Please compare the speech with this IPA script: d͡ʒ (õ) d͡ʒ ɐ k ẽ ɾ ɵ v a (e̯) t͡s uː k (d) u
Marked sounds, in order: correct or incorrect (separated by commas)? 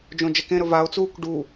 correct, incorrect, incorrect